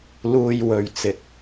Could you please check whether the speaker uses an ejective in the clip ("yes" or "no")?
no